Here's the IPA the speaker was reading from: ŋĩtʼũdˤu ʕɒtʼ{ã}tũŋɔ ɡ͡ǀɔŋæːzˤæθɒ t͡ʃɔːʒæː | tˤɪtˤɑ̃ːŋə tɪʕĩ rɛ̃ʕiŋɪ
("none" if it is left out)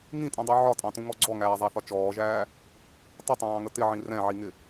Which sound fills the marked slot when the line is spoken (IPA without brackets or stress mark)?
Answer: ɑ̃